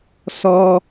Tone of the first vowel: high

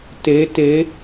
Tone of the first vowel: rising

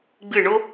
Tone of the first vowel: falling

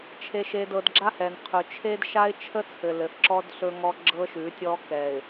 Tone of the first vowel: low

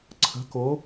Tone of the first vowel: rising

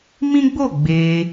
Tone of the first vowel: high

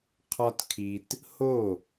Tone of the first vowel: high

